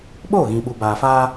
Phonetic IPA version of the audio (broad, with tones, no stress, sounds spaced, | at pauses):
ɓ oː˦˨ ɣ ĩ˨ ɓ u˨ b aː˨ f a˦